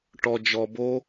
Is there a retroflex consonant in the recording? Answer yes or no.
yes